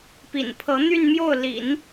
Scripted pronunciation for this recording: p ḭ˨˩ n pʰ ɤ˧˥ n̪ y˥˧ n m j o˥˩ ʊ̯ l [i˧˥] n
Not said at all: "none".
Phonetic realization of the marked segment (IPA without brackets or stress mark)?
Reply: ḭ˨˩˦